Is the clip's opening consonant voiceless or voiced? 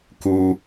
voiceless